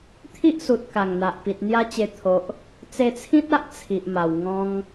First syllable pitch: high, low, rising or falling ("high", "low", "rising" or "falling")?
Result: high